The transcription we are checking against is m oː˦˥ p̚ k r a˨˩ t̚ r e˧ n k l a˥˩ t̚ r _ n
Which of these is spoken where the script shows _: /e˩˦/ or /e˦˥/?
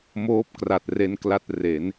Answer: e˩˦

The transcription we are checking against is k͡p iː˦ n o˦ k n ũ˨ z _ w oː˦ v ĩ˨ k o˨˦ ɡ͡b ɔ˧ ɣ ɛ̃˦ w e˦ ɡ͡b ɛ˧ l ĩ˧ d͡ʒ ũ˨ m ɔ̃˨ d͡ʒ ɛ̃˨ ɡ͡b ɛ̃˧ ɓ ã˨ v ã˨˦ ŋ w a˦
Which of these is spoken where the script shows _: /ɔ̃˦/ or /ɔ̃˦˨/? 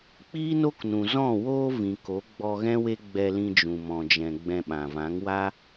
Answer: ɔ̃˦˨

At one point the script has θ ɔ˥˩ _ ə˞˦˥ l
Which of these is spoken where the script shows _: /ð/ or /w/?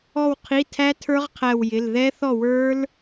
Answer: w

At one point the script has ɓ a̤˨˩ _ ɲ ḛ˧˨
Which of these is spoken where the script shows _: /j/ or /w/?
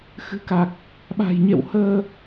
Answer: j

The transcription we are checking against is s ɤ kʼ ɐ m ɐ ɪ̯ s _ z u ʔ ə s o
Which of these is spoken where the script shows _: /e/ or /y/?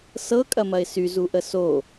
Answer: y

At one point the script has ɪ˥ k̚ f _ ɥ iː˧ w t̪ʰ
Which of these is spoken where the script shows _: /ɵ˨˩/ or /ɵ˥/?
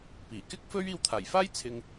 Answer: ɵ˥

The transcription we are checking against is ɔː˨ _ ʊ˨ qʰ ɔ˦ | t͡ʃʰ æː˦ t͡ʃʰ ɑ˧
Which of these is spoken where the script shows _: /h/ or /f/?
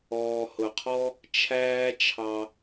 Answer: h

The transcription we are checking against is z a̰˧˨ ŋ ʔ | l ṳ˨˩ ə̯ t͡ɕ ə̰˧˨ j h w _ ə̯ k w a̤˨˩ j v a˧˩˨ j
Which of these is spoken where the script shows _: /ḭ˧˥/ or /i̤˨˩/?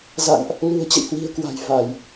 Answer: i̤˨˩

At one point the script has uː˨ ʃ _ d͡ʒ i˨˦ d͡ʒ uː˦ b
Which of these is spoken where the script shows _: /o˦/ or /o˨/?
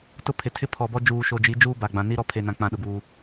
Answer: o˨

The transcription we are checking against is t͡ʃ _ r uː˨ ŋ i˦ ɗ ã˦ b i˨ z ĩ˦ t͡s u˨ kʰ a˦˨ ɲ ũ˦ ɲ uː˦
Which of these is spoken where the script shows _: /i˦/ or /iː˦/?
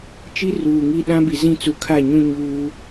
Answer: i˦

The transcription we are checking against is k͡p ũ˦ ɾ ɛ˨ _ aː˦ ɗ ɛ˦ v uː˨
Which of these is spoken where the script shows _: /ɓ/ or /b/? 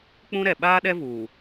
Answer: ɓ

